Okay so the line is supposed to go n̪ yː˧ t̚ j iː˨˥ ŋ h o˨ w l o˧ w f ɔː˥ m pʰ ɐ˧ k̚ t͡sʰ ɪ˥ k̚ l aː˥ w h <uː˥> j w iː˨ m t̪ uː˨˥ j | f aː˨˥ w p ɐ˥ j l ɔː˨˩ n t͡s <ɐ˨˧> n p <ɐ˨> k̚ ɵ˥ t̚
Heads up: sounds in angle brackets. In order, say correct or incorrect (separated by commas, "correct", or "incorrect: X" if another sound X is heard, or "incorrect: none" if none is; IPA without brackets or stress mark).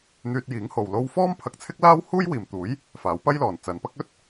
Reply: correct, correct, incorrect: ɐ˥